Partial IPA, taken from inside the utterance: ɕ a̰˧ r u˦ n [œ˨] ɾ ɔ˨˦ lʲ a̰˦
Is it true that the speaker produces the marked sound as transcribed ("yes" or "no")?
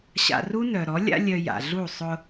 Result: yes